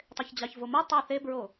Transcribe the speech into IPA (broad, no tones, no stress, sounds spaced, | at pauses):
tˤ e ç d͡ʑ ɑ ç v o m u tˤ e θ e b ɹ o